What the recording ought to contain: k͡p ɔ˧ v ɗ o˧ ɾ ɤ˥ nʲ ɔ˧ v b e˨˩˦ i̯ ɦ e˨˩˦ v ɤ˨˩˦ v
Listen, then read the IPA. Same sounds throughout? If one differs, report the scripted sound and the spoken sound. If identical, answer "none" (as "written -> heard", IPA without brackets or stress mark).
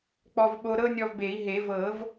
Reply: ɗ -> ɓ